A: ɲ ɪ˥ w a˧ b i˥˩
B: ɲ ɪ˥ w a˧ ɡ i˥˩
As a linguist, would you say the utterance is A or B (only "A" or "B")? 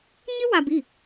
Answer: A